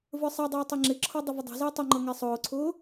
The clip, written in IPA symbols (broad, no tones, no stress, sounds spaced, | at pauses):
v ə˞ sˤ ɛ dˤ ʌː tˤ i ŋ͡ǁ ɪ ǁʰ ɔ dˤ ə v ə dˤ ɛ̤ z ɪː tˤ ʊ ŋ͡ǃ ʌ ŋ ɛ sˤ ʊː ǀʰ ʊː